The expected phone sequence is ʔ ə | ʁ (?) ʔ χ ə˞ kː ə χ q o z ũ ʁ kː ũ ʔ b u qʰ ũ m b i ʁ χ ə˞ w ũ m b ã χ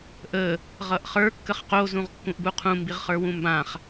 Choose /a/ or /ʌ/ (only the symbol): ʌ